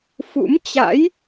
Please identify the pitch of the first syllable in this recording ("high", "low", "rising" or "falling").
rising